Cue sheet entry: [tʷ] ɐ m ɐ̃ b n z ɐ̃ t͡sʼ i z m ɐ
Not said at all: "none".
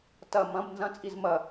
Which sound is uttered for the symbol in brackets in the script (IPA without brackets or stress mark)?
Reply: t